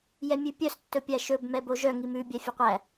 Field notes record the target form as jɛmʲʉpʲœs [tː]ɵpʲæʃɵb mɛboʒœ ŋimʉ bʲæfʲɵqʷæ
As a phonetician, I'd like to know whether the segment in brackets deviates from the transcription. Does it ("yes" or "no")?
no